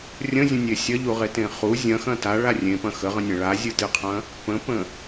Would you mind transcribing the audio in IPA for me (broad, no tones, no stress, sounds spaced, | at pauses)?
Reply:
rʲ ə̃ zʲ ə̃ nʲ e sʲ ɐ ʎ u ʁ e t ẽ χ u zʲ ɐ̃ x ɐ̃ t a ɭ a rʲ ẽ p ɐ̃ x ə ʁ ə̃ nʲ ɐ̃ ɭ a zʲ ɨ t ɨ qʰ ɐ̃ | p ə̃ p ə̃